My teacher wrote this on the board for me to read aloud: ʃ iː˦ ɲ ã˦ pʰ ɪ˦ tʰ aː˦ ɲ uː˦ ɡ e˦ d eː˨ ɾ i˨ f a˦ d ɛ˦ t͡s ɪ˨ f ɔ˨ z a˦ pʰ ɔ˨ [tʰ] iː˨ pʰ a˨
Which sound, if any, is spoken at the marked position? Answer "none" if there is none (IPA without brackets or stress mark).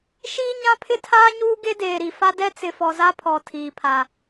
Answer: tʰ